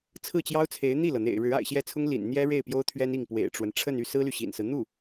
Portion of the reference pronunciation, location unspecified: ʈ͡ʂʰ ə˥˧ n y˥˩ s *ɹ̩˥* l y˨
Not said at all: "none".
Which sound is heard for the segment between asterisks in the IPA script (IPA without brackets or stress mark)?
ɹ̩˥